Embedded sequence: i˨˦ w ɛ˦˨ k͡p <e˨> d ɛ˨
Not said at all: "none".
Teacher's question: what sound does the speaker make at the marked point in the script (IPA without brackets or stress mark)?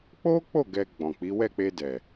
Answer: e˧